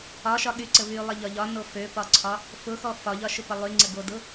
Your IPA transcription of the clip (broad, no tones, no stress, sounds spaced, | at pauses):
ɒ ʃ ɒ ɠ y ǀ ə v y lˠ ə ʎ ɒ ʎ ɒ n o f ø p ɒ ǀʰ ɒ | f ʊ x ɔ f ɒ ʎ ɒ ʃ ʊ p ə lˠ y ŋ͡ǀ ə ɡ o d ʊ